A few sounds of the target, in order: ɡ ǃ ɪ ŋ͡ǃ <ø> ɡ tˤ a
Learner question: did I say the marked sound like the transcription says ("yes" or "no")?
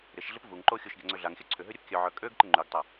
no